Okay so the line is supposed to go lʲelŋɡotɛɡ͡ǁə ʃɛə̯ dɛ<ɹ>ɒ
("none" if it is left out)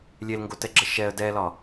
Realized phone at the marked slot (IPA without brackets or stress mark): l